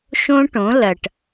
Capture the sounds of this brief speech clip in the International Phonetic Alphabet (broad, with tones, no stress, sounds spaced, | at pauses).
ʃ õ˦ ʈ õ˨˦ l ɐ˨ ʈ